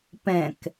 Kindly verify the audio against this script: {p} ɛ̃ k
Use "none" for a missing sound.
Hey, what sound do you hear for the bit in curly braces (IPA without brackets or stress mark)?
p